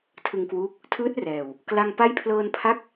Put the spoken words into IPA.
tʰɯ˧ŋkwuː˦˥k̚ | tʰɯː˦˥t̚rɛː˨˩w | kla˧ŋ pa˦˥jpʰlɤː˧npʰa˦˥k̚

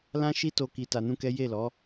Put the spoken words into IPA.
lã˦ʃi˦to˧ ki˧ta˧nũ˦kɛ˦ je˦˨lɔ˨˦

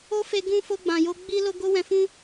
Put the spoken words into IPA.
o˦fe˧ ɡũ˧fo˧ɡ͡bã˨jo˧ ɡ͡bi˧lo˧ ɡo˦wɛ̃˧fũ˦

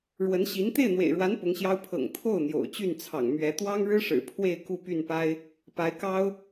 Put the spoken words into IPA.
ɻwə˧˥n ɕi˧˥n t̪e˥˩ɪ̯n̪wḛ˨˩ɪ̯ɻwa˧˥n pʊ˧˥ŋɕjɑ˥ʊ̯ pʰɤ̰˨˩ŋ t̪ʰo˥˩ʊ̯ n̪jo̰˨˩ʊ̯t͡ɕy˥˩nt͡sʰɑ̰˨˩ŋ mɥɛ˧˥ t̪wɑ˥ŋɻɻ̩˥ʂɻ̩˨˩ pʰwe˥˧ɪ̯ ku˥˧py˥˩npa˥ɪ̯ | pa˧˥ɪ̯kɑ˥ʊ̯

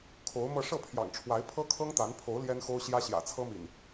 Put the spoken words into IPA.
kʰo˨˦ʊ̯mɤ˧ ʂɤ˥˨pʰjɑ̰˨˩ŋʈ͡ʂʰwa˨˦ɪ̯ pʰɤ˦kʰɤ˦ŋt̪a˨˦npʰo˨˦ʊ̯ ljɛ˦nxo˦ʊ̯ɕjä˦ ɕjä̰˨˩t͡sʰɤ˦mḭ˨˩n

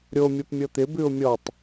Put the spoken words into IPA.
ɾʲo mʲɤpmʲɤt̪ɪ bʉʊ̯mʲɔtˤ

